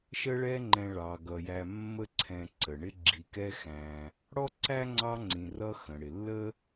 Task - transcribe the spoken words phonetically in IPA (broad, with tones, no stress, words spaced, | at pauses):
ʃə˦ɭɛ˦ŋ͡ǃɛ̃˨ ɭɑ˩ɡʌ˩jæ˨ mːə˦ǀʰɛ̃˨ ǀə˩ɳɪ˥ ɡ͡ǁi˨kɛ˦xæ̃˨ | ɽɔ˥ǀæ˥ŋ͡ǀɑ˦ ŋ͡ǀĩ˨ rʌ˦ xə̃˩ɽɪ˩lːə˥